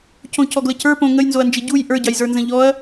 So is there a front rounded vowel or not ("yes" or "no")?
no